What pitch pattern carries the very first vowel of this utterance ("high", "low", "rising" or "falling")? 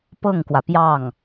falling